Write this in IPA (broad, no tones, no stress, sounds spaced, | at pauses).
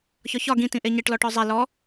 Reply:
ç ɒ ç ɒ ɡ ĩ t ĩ ʔ e ɲ e ʈ l ɔ ʈ ɔ zˤ ɛ l ɔ